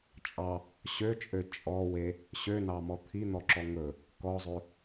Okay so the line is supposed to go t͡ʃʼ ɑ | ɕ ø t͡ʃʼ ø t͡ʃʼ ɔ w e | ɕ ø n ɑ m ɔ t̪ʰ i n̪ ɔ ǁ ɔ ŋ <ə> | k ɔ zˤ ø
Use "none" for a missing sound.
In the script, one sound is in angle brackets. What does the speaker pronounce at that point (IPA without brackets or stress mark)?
ɵ